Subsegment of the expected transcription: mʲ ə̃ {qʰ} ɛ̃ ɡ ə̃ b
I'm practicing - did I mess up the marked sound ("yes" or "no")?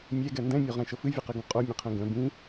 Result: no